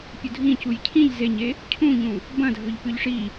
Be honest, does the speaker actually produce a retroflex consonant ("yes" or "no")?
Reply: yes